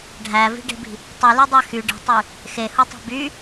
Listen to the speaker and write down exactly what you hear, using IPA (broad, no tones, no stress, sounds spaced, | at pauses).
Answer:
ɖʱ æ v i̤ ɖ e̤ b i̤ | tˤ ɯ l y dˤ æ x y ɖ i̤ tˤ y | x e h u tˤ o̤ b y